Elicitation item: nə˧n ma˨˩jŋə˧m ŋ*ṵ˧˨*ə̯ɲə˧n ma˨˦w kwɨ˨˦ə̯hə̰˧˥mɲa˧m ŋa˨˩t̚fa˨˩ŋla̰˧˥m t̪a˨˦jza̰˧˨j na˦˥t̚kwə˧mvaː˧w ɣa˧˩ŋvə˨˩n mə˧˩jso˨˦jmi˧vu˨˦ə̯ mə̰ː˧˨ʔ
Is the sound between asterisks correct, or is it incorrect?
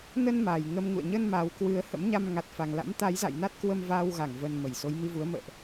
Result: correct